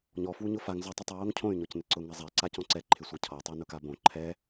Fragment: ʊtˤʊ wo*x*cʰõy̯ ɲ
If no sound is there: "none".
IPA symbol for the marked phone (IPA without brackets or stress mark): ŋ